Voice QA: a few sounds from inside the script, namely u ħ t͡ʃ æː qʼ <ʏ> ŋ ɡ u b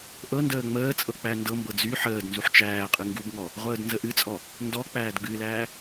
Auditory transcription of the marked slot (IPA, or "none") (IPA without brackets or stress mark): ɨ